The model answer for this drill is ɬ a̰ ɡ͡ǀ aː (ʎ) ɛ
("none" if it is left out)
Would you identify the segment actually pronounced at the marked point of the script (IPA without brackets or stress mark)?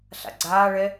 ɭ